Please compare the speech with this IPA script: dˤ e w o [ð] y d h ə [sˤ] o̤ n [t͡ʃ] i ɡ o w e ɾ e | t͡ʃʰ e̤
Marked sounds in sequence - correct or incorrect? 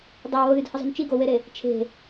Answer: correct, incorrect: zˤ, correct

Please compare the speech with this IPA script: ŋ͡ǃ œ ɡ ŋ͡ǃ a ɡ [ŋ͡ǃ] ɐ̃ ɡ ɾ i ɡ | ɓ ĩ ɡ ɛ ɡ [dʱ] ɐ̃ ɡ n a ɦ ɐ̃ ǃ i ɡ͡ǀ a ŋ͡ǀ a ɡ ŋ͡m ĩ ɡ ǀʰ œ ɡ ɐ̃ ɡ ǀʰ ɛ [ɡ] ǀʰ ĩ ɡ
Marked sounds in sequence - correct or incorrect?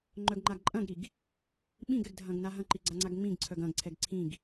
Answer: incorrect: ǃʼ, correct, correct

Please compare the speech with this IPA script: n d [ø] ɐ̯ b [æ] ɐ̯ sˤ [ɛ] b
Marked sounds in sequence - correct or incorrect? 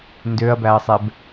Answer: correct, correct, correct

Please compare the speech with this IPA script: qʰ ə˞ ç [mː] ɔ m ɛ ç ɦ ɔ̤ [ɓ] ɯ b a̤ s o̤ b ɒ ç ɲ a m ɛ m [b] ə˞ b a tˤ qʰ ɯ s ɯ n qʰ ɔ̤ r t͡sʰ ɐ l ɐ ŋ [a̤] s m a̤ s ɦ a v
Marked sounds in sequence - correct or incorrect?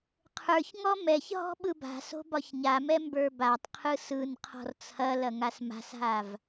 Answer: incorrect: ŋ, correct, correct, incorrect: a

